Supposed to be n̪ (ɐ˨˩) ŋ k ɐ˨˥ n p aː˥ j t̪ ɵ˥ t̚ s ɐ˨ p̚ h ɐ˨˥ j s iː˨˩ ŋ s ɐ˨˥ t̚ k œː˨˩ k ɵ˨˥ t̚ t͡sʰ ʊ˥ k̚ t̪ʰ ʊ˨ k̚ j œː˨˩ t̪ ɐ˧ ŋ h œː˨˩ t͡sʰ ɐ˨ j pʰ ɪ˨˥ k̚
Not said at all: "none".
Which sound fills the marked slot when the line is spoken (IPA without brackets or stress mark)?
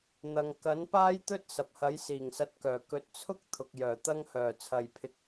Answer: ɐ˨